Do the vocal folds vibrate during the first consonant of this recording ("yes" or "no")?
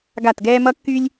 yes